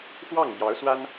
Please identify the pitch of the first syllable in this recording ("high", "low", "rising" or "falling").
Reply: falling